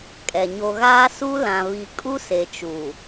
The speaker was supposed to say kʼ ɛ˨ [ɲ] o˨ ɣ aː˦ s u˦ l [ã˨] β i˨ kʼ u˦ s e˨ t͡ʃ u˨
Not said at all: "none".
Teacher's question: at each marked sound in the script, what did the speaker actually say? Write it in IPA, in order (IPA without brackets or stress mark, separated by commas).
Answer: ɲ, ã˨